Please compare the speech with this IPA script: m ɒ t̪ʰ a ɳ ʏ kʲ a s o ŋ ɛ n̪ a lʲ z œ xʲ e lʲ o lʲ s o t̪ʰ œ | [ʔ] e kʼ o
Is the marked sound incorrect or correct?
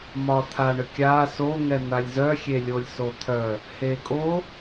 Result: incorrect: h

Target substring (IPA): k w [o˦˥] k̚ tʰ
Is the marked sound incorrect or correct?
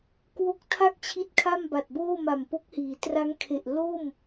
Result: correct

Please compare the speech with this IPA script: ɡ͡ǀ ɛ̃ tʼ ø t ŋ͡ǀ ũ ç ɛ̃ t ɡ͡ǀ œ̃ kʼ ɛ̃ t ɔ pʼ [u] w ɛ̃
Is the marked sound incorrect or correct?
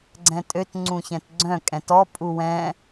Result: correct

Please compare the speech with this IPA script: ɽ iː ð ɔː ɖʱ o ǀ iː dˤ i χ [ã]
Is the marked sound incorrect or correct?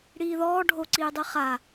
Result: incorrect: a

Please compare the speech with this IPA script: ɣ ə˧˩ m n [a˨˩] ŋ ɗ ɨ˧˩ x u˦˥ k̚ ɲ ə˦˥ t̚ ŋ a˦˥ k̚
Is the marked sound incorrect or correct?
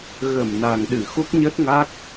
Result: correct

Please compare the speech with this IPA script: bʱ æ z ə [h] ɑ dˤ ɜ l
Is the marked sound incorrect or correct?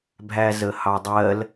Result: correct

